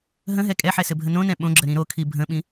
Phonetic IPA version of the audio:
ɦə̃ɦɛ kʼɛħɛ sɘbʱənõnɛ̃ ɓõɡ͡ǁə ɾĩɾokʰi bʱə̃ɓĩ

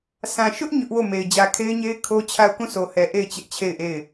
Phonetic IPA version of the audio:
sʰã˨ ʃʊ˦ʔ ɲʊ˦ʔwo˦˨me˨ɪ̯ d͡ʑä˨kʰe˦ɪ̯ɲe˦ɪ̯ kʰo˦ t͡ɕʰa˦˨ʊ̯ kũ˦˨sʰo˨hɛ˨ ʔe˦˨ɪ̯ t͡ɕɪ˦ʔt͡ɕʰe˦˨ɪ̯ʔe˦˨ɪ̯

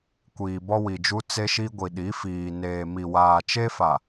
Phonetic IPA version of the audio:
kʷiː˨bɔ˦wi˨d͡ʒu˦ t͡se˦ʃi˦ɡʷi˨ ɗi˨˦fiː˨neː˨ mi˨waː˨t͡ʃe˦fa˨

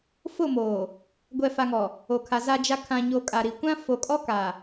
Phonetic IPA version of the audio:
fʊ˦˨moː˨ | ɡʷɛ˨fa˨ŋɔ˨ | o˨kʰa˨ za˨d͡ʒa˨ kʰã˨ɲoː˨ kʼa˨ɾi˨kʷã˦ fo˨kʼɔ˦ ka˨

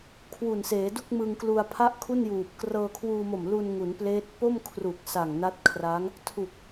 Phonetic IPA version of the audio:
kʰwu˨˩nseː˩˦du˥˩k̚ mɯ˧ŋklu˧a̯ pʰa˥˩ʔkʰu˥˩n juː˨˩p̚ krɤː˧kʰwuː˧mo˨˩mlu˧n ŋu˩˦npleː˦˥t̚ po˥˩mkʰru˨˩k̚ sa˨˩ŋna˦˥t̚kʰra˦˥ŋ | tʰu˨˩k̚

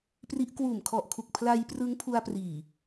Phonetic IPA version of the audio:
pri˦˥ʔ kwuː˨˩mkʰɔ˨˩ʔkʰu˨˩k̚ pʰla˧j prɯ˦˥ŋpʰu˧a̯priː˨˩

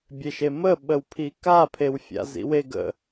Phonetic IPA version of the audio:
bʲeʃemə ɓəwpʰika pʰewfʲa̰zḭwe ɡə̰

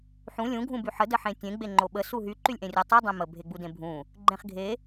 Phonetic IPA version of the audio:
ħũ lʲũ ɡʱũbyħə dəħẽtʲẽ ɡ͡beŋ͡ǃoɓə suɦy ǃylʲʔẽrʲə tˤu dˤẽmə bʱeɡ͡budẽbʱũ | ɡ͡ǃẽχɡʱe

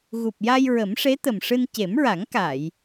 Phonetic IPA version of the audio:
ɣu˨˩p̚ja˧j ɹə˨˩˦mʂe˧˥t̪ə˨˩mʂɨ˧n ce˨˩˦mɹa˨˩˦ŋka˨˩˨j

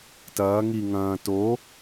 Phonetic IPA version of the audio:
tɐː ŋi ŋɐ̃ː to

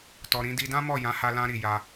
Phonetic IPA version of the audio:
tɔ˨ɾĩ˨˦ di˧dã˦mɔ˦˨ jã˨˦ha˧lã˧ɾi˨ ja˧

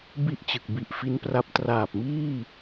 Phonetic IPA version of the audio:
bi˥˩ʔt͡ɕɯ˨˩k̚ bi˨˩ʔfi˦˥npra˦˥p̚ traː˨˩p̚miː˥˩

